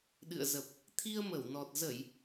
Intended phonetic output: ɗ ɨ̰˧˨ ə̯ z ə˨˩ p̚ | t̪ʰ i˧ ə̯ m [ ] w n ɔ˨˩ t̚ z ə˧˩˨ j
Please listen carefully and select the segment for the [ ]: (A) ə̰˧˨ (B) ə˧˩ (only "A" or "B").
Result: B